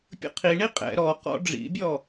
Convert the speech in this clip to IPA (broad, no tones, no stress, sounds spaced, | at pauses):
pʲ ə̰ qʰ i ɳ i qʼ ɛ̰ ɾ ɔ q ɔ̰ ɖ͡ʐ ḭ bʲ ɔ